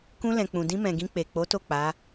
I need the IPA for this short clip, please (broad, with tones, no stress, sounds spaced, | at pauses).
k ũ˧ l ɛ̃˨ k͡p ũ˨ d ĩ˧ m ɛ̃˨ ɡ ĩ˧ k͡p e˨ k͡p o˨˦ t o˦˨ k͡p a˨˦